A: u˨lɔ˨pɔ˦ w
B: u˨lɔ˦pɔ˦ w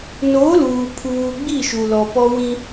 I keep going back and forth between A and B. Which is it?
A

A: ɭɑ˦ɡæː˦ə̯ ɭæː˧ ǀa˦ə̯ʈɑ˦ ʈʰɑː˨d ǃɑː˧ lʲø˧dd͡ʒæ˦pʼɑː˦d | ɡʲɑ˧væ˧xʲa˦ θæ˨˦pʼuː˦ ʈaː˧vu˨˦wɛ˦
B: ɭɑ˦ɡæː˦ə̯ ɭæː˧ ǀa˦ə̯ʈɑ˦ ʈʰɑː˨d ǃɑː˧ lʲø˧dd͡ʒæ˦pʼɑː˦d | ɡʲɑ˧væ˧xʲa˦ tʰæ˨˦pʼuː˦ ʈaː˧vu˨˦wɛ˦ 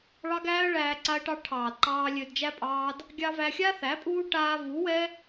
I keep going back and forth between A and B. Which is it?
A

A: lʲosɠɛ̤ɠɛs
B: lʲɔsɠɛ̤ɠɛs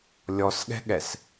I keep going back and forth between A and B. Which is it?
B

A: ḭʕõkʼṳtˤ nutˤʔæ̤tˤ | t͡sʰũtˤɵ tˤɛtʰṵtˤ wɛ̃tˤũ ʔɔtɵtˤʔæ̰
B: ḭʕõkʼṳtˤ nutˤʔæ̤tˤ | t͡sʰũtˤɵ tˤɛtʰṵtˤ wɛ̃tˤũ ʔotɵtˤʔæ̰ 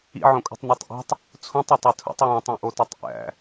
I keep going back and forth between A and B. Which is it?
B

